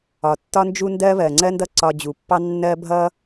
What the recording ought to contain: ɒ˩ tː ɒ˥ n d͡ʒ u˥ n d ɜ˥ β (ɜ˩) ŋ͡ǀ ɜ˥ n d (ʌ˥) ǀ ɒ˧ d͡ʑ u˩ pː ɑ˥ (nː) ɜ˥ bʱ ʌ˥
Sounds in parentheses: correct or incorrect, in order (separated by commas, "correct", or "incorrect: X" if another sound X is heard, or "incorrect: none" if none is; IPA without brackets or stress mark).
correct, correct, correct